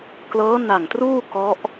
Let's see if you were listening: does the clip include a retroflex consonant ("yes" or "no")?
no